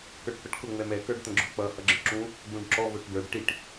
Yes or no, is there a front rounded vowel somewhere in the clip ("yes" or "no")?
no